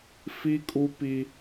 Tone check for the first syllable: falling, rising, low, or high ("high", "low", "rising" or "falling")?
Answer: high